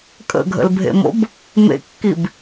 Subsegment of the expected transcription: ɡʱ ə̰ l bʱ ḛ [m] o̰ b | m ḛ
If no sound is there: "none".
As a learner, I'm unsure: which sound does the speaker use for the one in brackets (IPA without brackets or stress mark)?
m